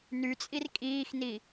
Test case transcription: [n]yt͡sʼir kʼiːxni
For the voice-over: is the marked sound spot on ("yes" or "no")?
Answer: yes